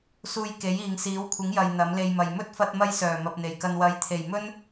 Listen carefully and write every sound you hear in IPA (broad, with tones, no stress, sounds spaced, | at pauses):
s uː˧ j k e˨˥ j iː˨ ŋ s iː˨˥ w kʷʰ ɪ˨˥ ŋ j ɐ˨ j n̪ ɐ˨˥ m l e˧ j m ɐ˨ j m ɵ˥ t̚ f ɐ˧ t̚ m ɐ˧ j s œː˨˩ m ɐ˨ p̚ n̪ e˨˩ j k ɐ˧ n w ɐ˨˥ j t̪ʰ e˨˩ j m ɵ˥ n